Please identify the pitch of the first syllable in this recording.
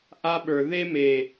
high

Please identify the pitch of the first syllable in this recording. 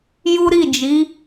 high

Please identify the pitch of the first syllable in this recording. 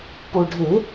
low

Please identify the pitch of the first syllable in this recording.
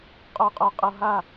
low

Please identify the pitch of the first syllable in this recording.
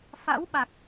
rising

